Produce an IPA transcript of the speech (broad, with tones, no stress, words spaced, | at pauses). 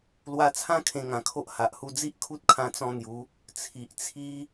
lwa˧t͡sʰã˥˧ kʰẽ˧ŋã˨˩kʰo˦ʔ ha˨ʔhu˧d͡zi˦ʔ kʰu˦t̚kʰã˧t͡sɔ̃˧ n̪ju˨˦ | t͡sʰi˨ʔt͡sʰi˦